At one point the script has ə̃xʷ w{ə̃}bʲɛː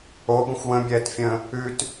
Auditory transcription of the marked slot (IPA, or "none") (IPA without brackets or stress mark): ə̃